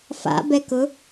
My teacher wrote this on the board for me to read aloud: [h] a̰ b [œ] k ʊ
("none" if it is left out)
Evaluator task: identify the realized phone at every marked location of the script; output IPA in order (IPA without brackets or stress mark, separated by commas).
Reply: f, ɛ